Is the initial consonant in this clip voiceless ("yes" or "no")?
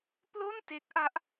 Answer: yes